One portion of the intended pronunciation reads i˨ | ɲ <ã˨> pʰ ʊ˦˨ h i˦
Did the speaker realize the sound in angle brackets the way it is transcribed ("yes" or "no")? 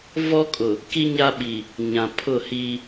yes